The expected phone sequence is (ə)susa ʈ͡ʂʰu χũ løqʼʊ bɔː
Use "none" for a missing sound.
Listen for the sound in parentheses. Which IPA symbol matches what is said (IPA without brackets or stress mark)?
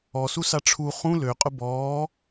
ɔ